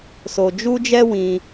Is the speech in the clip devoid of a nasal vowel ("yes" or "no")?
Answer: no